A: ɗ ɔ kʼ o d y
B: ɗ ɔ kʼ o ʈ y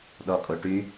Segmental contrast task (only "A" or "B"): B